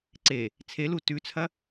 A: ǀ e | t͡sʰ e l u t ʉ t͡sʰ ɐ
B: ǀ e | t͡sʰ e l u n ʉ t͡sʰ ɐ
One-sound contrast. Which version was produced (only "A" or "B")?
A